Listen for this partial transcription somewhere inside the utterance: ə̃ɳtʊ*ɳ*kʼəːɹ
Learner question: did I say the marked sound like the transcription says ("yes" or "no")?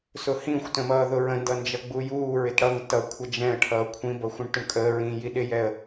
yes